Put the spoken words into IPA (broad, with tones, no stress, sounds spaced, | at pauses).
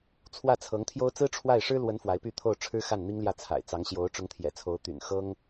t͡sʰ w ä˥˩ t͡sʰ ɤ˧˥ ŋ t̪ʰ j o˥ ʊ̯ t͡s ɹ̩˥ ʈ͡ʂʰ w a˥˩ ɪ̯ ʂ ɻ̩˥ l w ə˧˥ n f w a˧˥ ɪ̯ p y˥˧ t̪ʰ o˥˩ ʊ̯ ʈ͡ʂʰ ɻ̩˥ x a˥˩ n n̪ i˥ ŋ l j ä˥˩ t͡sʰ a̰˨˩ ɪ̯ t͡s ɑ˧˥ ŋ ɕ j o˧˥ ʊ̯ ʈ͡ʂ ʊ˧˥ ŋ t̪ʰ j ɛ̰˨˩ t͡sʰ o˧˥ ʊ̯ t̪ y̰˨˩ n x ɤ˥ ŋ